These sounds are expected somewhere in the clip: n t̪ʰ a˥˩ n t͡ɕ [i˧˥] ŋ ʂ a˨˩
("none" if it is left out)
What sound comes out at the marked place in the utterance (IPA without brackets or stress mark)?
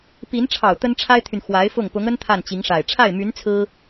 i˧˥